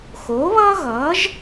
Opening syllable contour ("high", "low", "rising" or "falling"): rising